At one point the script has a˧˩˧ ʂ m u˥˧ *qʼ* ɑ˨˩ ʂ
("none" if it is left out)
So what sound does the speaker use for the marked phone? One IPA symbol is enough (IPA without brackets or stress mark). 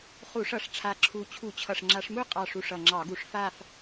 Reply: qʼ